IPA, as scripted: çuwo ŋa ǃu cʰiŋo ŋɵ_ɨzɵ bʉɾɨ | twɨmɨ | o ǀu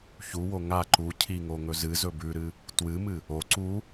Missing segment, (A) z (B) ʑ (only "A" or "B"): A